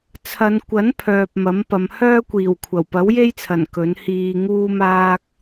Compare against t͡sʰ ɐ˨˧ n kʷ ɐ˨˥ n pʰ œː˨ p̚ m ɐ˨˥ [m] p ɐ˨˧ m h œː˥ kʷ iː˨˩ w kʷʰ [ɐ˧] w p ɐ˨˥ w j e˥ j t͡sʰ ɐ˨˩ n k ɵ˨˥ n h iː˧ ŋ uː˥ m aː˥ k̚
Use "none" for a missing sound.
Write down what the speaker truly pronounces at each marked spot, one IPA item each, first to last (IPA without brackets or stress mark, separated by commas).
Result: m, ɐ˨˩